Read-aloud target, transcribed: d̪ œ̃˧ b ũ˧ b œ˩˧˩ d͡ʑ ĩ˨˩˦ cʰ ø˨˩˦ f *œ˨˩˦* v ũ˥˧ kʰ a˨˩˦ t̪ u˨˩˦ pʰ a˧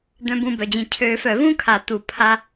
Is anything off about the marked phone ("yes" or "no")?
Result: no